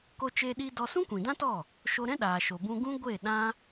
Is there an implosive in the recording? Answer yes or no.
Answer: yes